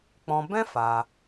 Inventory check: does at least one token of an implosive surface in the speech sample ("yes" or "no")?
no